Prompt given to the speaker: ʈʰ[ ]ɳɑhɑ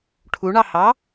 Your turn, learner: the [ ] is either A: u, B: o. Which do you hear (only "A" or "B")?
A